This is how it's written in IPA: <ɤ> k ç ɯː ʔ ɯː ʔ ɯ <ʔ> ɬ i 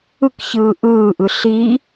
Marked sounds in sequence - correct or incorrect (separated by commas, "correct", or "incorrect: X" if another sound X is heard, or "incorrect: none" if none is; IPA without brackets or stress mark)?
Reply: incorrect: ɯ, incorrect: none